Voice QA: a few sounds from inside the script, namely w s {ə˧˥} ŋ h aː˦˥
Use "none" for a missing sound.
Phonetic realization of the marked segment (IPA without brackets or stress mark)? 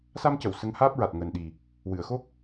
ə˧˥